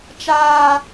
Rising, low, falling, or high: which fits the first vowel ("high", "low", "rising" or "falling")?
high